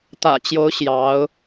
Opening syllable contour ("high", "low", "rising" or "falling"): low